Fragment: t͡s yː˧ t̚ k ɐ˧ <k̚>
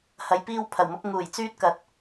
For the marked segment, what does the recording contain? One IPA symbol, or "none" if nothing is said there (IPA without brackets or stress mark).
t̚